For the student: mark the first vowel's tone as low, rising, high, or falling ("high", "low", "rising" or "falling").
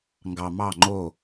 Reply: low